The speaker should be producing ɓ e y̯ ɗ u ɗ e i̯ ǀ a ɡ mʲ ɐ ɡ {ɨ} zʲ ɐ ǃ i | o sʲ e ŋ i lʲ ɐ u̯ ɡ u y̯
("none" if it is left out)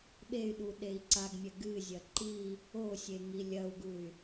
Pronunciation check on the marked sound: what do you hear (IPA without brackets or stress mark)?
ɨ